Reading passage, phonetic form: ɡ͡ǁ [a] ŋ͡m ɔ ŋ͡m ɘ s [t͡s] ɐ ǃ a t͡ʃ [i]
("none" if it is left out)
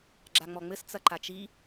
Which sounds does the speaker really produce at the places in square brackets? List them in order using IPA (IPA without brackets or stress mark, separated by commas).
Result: a, t͡s, i